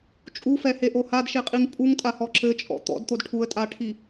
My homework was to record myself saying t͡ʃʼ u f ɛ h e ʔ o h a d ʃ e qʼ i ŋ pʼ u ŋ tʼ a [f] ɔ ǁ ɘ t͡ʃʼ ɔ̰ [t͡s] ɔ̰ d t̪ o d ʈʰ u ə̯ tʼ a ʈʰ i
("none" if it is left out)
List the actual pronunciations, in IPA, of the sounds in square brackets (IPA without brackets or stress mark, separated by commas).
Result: h, t̪